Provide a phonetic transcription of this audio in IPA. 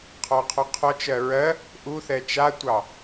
qʰ ɔ qʰ ɔ qʰ ɔ t͡ʃ ɜ ɹ ɜ | ʔ u θ ɛ t͡ʃ a tʷ ɑ

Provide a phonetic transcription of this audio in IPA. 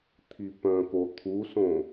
t̪ʰ i p œ̃ k o t̪ʰ u s õ

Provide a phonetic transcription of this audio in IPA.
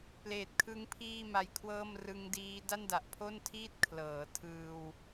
p l eː˨˩ t̚ kʰ ɯ˦˥ ŋ pʰ iː˥˩ m a˦˥ j kʰ w ɤː˥˩ m r ɯ˦˥ ŋ d iː˦˥ d a˥˩ n d a˨˩ ʔ pʰ o˥˩ n tʰ iː˥˩ t̚ kʰ l ɤː˩˦ tʰ ɯː˧ w

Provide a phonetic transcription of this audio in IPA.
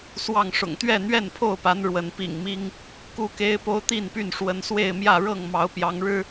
s w ɑ˥˨ ŋ ʂ ʊ̰˨˩ ŋ t̪ ɥ ɛ˥˨ n̪ ɥ ɛ˥˨ n pʰ o˥˨ ʊ̯ p a˨˦ n ɻ w ə˨˦ n p ḭ˨˩ ŋ m i˦ ŋ | k u˦ k e˦ ɪ̯ p o˦ ʊ̯ t̪ i˥˨ n p y˥˨ n ʂ w ə˨˦ n s w e˥˨ ɪ̯ m j ä˥˨ ɻ ɤ˥˨ ŋ m ɑ˨˦ ʊ̯ p j ɑ˨˦ ŋ ɻ ɻ̩˦

